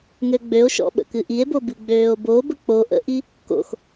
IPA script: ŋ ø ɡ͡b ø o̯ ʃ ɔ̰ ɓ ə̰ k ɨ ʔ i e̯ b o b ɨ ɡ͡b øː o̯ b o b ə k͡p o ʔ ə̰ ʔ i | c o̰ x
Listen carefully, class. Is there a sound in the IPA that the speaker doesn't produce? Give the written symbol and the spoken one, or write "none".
c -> k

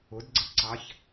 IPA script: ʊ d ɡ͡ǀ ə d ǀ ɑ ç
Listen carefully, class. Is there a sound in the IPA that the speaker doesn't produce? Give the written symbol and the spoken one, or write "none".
none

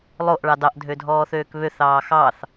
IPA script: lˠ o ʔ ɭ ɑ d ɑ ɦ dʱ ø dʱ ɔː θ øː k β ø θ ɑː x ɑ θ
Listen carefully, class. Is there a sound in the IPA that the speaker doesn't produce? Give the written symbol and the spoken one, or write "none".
ɦ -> ʔ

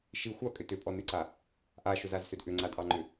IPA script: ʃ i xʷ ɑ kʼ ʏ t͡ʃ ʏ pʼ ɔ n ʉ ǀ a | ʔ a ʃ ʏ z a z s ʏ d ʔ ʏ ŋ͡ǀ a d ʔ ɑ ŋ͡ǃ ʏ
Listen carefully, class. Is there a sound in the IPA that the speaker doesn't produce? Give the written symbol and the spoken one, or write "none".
t͡ʃ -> t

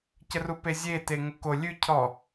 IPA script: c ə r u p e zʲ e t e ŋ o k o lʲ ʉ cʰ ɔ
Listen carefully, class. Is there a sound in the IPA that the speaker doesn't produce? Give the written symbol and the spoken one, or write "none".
none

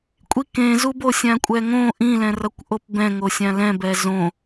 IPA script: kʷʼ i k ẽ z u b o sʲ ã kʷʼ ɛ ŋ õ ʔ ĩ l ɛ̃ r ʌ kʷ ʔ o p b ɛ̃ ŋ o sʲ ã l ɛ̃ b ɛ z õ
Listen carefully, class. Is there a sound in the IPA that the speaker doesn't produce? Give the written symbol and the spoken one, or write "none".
none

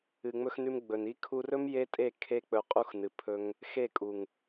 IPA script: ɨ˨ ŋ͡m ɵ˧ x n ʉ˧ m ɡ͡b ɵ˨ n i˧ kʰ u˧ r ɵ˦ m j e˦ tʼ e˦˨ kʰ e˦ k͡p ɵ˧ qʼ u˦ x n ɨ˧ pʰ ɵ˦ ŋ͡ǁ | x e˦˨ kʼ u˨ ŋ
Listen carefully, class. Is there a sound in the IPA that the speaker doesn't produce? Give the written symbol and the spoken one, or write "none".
ŋ͡ǁ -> ŋ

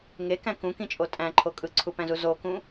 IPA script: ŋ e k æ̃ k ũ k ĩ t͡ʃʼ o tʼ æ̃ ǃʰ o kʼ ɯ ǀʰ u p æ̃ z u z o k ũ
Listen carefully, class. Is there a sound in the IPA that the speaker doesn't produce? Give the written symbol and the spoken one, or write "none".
none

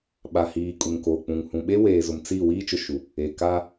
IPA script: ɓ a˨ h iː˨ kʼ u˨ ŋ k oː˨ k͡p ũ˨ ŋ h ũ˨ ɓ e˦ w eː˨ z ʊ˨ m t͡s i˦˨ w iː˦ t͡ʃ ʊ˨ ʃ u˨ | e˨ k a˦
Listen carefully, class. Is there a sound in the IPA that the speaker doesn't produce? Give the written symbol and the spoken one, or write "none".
none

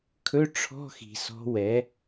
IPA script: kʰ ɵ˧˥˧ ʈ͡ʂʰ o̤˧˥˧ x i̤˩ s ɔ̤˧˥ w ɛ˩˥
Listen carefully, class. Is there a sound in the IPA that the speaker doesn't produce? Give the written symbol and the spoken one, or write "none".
o̤˧˥˧ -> ɔ̤˧˥˧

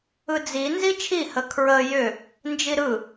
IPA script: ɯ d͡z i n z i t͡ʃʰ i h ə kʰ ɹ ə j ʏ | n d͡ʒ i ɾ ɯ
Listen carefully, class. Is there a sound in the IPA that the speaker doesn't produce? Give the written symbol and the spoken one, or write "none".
none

